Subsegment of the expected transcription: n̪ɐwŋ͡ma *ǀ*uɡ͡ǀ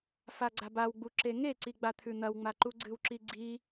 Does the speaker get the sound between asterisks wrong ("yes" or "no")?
yes